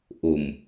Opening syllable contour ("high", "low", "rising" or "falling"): low